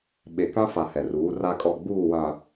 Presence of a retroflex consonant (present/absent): absent